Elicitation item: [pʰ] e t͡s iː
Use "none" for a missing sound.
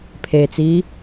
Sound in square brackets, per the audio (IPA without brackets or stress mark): pʰ